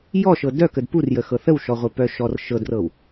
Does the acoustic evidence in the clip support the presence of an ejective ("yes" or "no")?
no